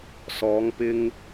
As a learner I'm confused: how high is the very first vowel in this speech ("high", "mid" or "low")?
mid